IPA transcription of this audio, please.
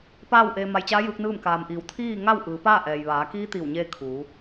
paː˥˨wʔeː˧ ma˧jt͡ɕaː˧˥ jɯː˧˥k̚nɯː˥˨m kaː˩mʔiː˩˧wt̪ʰiː˥˨ŋa˥˨w ʔɯː˩˧paː˥˨ ʔɛː˩jʋaː˩˧kiː˧˥ t̪iː˧˩wɲeː˧ kʰuː˩˧

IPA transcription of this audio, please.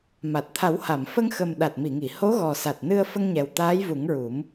ma˨˩t̚t̪ʰa˨˩˦wha˨˩˨m fə˧ŋxə˨˩m ɗa˨˩t̚mi˨˩˨ŋi˨˩˨ ho˧˥ɣɔ˨˩sa˨˩t̚nɨ˧ə̯ fə˧ŋɲɛ˨˩w t̪aː˧˥jvu˨˩˦ŋɹu˨˩˦m

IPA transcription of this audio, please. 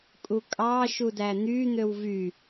kʼukʼɑː ʃudæn̪y n̪øwvy

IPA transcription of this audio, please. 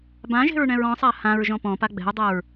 bãʒe̤ɹ ɳɛ̃ɹɔ̃sˤa hãɹ ʒɔ̃pɔ̃pa ɡ͡bɛ̤u̯dˤɛɹ

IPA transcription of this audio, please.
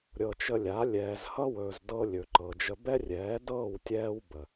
ɾʲɤː˨t͡ʃə˧lʲa˨˦ lʲɛː˨zhʌ˦wɵː˨zdɤ˧ lʲɵ˨ǃɤ˨d͡ʒə˧ bɛ˦rʲɛː˨˦dɤː˦˨w tʲɛː˦w bə˨

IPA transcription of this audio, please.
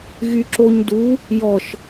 ɣyǁoɲdu | jɔʃ

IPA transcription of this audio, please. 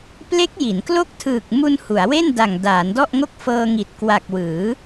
ple˦˥k̚ ji˩˦nklo˥˩k̚ tʰɯː˨˩k̚mu˧n hu˩˦a̯we˥˩nda˨˩ŋ daː˩˦ndɔ˥˩ʔŋo˥˩k̚ fɤː˧ŋi˨˩t̚kwa˨˩k̚ wɯː˩˦

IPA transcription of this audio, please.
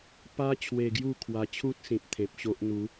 pa˦ t͡ɕʰwe˧ɡju˥˧kʰwa˧t͡ɕʰu˦t̚ sĩ˨p̚t̪ʰẽ˨p̚ɕo˦ʔ n̪u˨˦

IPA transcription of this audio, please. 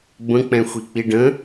bə̃k͡pɛ̃ xʷik͡piɖə̃

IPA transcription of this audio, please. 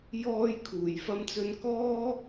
jɔː˧jkʰuː˨˩j fɐ˧mt͡sɵ˧nkɔː˥

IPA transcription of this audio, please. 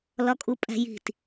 lɒkʼupʼæ̤ji̤t

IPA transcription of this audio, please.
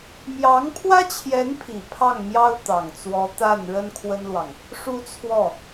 mjɑ˧˥ŋpʰwä˥t͡ɕʰjɛ˧˥npʰi˨˩ pʰɑ˥˩ŋmjɑ˥ʊ̯ t̪ɑ˨˩ŋt͡swɔ˧˥ t̪a˥˩n ɻə˥nkʰwə˥nlwɑ˨ŋ | ʂu˥˧t͡sʰwɔ˥˩

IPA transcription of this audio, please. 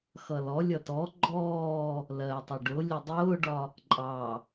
xʌlɔlʲʌ tɔ ɡ͡ǃɔː | lɜtˤɪ ɖʊ lʲʊdˤʊːɖɒ | ǃʼɑ

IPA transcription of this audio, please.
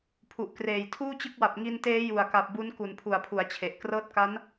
pʰu˨˩ʔkreː˨˩j tʰuː˥˩t͡ɕɯ˦˥k̚wa˨˩p̚ ŋi˧nteː˦˥ ju˨˩a̯ka˨˩p̚bu˦˥n ku˨˩npʰu˩˦a̯pʰu˩˦a̯t͡ɕʰe˨˩ʔ krɤː˦˥t̚ka˦˥n

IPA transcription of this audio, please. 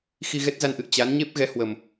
xi˧ɣɛ˦˥t̚za˧nʔɨ̰˧˨ə̯ t͡ɕa˨˦n ɲe˦˥p̚ɣɛ˨˦hwə˨˩m

